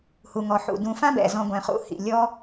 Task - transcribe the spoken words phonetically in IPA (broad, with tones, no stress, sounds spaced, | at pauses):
h u˩ ŋ ɔ˩ ħ ṵ˩ d ũ˨ f ã˦ b ɛ̰˩ z ɔ̃˨ ɡʷ ɛ̃˩ χ ṵ˨ h ḭ˩ lʲ ɔ˦